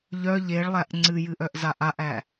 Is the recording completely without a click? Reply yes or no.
no